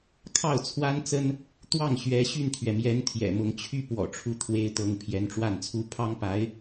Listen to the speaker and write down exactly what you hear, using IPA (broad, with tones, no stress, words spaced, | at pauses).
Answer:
kʰɑ˥˩ʊ̯t͡sʰwa˥nt͡sə˥n | t̪wɑ˥˩ŋɕɥɛ˧˥ ɕy˥˩nt̪ʰɥɛ˩mjɛ˧˥n t̪ʰjɛ̰˨˩mʊ˧˥ŋt͡ɕʰy˥ pwɔ̰˨˩ʈ͡ʂʰu˥˩t̪ʰwe˥ɪ̯t̪ɤ˧˥ŋ pʰjɛ˧˥nʈ͡ʂwa˥˩nt͡sʰu˥ pʰɑ˥ŋpa˧˥ɪ̯